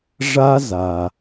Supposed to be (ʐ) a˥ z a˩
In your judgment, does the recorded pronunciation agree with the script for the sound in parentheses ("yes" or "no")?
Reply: yes